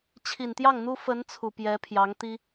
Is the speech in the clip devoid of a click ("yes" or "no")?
yes